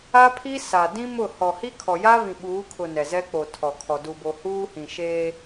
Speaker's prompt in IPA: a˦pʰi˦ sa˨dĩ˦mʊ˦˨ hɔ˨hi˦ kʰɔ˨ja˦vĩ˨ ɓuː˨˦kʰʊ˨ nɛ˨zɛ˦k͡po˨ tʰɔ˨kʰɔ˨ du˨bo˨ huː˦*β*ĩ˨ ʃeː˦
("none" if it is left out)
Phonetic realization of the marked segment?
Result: h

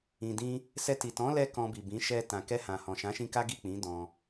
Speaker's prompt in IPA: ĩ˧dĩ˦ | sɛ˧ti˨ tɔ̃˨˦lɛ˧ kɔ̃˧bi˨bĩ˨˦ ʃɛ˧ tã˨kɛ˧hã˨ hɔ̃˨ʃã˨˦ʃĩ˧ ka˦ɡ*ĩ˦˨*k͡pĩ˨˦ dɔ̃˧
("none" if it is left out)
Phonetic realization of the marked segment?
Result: i˦˨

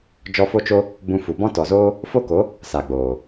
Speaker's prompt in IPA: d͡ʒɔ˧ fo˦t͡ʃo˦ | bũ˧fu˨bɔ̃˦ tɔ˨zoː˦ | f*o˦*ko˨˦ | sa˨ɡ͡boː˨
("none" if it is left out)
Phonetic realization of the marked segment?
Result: o˦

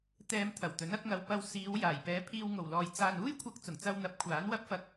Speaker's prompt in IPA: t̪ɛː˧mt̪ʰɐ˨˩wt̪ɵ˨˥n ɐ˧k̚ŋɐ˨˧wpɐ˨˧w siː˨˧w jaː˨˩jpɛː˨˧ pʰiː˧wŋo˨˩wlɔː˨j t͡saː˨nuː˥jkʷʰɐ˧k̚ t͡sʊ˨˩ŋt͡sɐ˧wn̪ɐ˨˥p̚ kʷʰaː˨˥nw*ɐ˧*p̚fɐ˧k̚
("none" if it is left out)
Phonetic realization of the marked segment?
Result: ɐ˥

